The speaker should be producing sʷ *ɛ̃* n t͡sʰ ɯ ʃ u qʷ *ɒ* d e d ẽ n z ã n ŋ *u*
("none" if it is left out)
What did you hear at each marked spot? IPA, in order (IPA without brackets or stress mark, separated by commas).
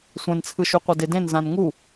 ɛ̃, ʌ, u